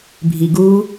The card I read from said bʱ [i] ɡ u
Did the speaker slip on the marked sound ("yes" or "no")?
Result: no